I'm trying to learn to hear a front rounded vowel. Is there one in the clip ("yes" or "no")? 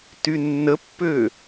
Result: yes